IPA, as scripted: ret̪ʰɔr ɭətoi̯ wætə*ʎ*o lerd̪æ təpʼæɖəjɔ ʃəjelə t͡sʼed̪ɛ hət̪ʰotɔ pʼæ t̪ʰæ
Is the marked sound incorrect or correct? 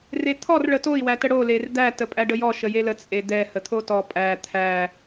incorrect